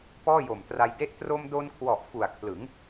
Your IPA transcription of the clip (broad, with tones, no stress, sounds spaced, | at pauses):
p ɔː˥˩ j o˨˩ m t r a˧ j d e˥˩ ʔ t r o˧ m d o˧ n kʰ w ɔ˨˩ ʔ f u˨˩ a̯ kʰ l ɯ˩˦ ŋ